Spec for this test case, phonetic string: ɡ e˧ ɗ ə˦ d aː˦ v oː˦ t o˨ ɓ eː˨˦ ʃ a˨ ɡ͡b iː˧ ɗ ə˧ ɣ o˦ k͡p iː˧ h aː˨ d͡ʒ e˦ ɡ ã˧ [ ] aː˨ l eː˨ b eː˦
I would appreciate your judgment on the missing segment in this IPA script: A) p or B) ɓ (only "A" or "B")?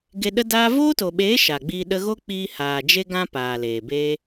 A